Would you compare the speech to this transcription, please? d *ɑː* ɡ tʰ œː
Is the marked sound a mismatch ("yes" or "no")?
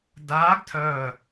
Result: yes